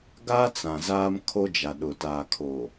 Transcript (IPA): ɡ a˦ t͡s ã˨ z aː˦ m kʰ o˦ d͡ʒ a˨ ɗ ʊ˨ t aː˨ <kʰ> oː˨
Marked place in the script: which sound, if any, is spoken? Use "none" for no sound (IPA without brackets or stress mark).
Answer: kʰ